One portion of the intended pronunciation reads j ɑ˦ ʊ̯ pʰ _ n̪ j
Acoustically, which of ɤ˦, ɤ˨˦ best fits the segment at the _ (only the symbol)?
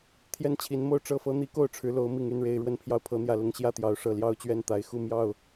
ɤ˨˦